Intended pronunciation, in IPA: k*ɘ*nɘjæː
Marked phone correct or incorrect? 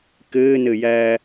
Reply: incorrect